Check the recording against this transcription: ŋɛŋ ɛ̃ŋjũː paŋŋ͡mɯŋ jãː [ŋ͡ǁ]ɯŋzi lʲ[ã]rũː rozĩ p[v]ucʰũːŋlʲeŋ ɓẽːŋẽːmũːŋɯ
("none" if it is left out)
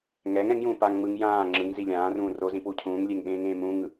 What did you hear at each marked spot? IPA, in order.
ŋ͡ǁ, ãː, w

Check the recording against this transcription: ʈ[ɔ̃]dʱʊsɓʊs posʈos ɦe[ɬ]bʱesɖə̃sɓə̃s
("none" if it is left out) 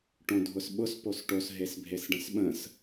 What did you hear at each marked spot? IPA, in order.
õ, s

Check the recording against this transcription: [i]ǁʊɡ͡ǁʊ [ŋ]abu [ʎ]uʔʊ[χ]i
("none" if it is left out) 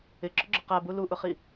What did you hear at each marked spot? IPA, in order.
ɪ, q, l, χ

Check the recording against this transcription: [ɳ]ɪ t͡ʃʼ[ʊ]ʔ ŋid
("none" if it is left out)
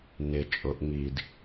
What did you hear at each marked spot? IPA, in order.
n, ʊ

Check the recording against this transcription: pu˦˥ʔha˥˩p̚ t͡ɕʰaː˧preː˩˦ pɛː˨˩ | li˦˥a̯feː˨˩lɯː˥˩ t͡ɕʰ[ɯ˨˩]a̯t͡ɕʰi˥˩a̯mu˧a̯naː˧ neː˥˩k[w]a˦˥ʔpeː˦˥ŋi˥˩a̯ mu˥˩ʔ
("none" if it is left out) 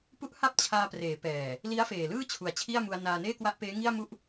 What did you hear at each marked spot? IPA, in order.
u˨˩, w

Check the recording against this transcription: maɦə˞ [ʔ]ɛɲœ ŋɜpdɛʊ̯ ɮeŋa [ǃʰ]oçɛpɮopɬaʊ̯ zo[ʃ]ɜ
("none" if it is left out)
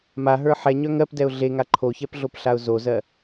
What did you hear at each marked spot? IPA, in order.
ħ, ǃʰ, z

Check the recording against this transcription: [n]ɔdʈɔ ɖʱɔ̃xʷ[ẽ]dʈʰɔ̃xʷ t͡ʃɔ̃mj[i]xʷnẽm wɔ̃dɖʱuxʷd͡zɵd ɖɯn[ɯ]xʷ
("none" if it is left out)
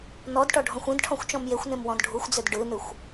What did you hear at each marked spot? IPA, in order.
n, ẽ, e, ɯ

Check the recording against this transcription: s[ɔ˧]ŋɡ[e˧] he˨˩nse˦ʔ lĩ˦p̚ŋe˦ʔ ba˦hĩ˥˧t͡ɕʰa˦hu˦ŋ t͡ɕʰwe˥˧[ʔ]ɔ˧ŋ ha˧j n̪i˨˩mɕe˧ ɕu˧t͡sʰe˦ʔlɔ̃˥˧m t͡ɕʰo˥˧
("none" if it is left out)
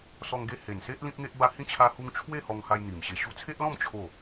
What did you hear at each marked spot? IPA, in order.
ɔ˧, e˧, h

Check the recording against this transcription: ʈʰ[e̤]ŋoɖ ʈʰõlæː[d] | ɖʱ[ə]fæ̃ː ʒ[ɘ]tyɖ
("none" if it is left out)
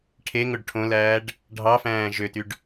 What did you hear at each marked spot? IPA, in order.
e, ɖ, ɑ, ø

